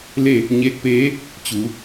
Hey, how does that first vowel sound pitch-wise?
falling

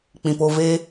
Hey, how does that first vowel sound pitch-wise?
low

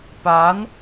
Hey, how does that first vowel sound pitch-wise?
rising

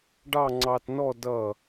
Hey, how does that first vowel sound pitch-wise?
falling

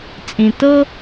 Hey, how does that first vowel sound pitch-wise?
low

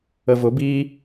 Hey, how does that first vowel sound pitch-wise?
low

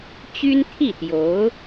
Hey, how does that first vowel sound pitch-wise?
high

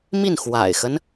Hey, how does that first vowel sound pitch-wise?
falling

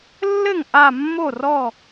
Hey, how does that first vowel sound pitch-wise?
falling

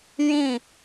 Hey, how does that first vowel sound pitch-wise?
falling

